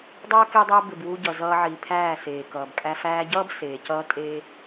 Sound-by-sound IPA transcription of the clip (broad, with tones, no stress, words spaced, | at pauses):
dˤʌː˦ ke˦dˤɜ˦ bɪ˨b wu˧ɟʌ˨ zʌː˧ʕi˨pʰæː˦˨ seː˨kʌː˨bkʼæ˦ fæː˧ɟʌː˦b seː˨cʌː˦ tʼeː˦